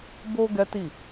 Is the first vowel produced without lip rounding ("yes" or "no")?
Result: no